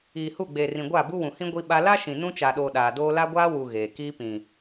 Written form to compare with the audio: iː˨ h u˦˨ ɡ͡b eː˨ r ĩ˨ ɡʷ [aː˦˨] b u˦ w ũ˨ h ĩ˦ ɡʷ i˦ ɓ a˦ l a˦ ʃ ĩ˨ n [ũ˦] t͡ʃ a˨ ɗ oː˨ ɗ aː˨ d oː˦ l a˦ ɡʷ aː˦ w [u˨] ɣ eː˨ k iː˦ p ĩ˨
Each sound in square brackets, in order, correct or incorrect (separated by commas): correct, correct, correct